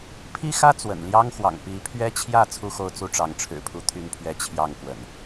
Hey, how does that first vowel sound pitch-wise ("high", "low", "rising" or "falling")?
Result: high